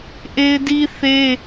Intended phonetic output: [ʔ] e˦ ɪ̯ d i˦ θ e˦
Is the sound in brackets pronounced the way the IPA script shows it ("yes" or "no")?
yes